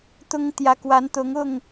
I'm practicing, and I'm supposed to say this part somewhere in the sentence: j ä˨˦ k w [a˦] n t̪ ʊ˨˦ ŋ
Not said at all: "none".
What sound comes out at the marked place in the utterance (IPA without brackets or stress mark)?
a˨˦